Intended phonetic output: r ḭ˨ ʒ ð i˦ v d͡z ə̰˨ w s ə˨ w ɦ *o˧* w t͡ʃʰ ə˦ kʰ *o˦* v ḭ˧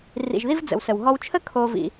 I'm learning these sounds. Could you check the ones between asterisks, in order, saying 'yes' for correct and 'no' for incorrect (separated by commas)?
no, yes